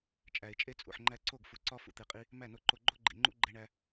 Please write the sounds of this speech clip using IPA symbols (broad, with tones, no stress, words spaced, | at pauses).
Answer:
t͡ʃʼæ˨ɪ̯t͡ʃʼe˦t͡sʼṵ˨ħŋ͡ǃæ˦ ǀo˦˨ɡfu˨ǀɒ˦ fṵ˧t̪e˧qʼi˦ | mæ˦˨no˧ǃo˧ ɡ͡ǃo˦ɡ͡ǃḭ˨ŋ͡ǃṵ˦ ɡ͡ǃe˧ɳæ˧